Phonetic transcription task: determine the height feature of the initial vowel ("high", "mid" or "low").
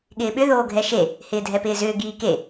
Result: high